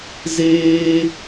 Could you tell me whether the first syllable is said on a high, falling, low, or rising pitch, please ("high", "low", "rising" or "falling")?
high